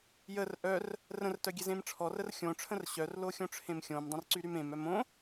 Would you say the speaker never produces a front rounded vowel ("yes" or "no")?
no